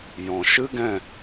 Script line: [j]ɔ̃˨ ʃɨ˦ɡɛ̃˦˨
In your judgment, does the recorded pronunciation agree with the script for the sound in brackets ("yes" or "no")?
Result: yes